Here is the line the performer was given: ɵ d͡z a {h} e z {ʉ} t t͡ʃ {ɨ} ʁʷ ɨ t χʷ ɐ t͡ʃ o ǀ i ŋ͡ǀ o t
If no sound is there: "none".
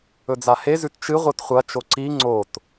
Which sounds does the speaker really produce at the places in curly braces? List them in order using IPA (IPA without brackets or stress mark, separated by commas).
h, ʉ, ɨ